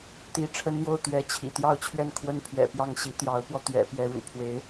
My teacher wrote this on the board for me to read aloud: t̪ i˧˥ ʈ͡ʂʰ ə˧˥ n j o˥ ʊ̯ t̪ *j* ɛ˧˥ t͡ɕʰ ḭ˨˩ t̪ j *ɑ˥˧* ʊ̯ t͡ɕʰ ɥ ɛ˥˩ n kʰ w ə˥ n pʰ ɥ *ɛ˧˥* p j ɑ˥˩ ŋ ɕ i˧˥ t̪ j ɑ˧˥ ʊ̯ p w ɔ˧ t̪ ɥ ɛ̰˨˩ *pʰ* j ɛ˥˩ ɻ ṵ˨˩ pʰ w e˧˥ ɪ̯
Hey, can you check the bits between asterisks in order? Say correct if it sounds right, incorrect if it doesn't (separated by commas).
incorrect, correct, incorrect, incorrect